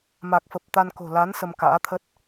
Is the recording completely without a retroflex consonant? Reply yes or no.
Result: yes